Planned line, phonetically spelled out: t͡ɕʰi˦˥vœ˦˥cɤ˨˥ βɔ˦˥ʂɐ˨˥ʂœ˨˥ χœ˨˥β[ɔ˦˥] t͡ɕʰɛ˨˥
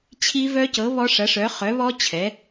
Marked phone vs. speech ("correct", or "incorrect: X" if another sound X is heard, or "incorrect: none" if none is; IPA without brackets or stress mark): correct